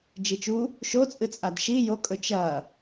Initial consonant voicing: voiced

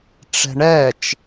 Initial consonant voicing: voiceless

